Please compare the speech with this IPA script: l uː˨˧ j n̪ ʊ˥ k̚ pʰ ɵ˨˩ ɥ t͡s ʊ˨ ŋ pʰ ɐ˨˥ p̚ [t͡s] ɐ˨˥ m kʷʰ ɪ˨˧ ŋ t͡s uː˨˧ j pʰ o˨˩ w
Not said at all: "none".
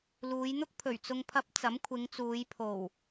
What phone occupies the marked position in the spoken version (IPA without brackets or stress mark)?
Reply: t͡s